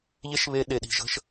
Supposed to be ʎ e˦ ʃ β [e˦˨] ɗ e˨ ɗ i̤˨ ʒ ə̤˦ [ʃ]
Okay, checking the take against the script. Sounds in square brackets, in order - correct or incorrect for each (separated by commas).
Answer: incorrect, correct